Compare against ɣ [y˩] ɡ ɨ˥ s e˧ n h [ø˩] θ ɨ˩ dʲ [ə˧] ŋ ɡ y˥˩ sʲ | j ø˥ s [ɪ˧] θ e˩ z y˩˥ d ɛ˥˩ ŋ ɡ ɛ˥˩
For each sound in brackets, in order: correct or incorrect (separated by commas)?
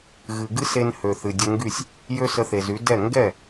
incorrect, correct, correct, incorrect